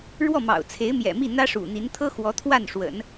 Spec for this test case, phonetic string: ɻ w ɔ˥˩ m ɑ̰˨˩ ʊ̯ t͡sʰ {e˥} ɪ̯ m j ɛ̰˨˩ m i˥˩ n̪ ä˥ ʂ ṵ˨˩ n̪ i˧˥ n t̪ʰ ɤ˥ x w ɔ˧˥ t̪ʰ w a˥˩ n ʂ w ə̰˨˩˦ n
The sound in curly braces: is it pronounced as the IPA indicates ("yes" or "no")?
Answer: no